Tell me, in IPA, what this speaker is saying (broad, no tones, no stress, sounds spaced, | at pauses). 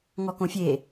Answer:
ŋ ɔ k õ fʲ e